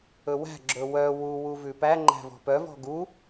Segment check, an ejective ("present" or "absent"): absent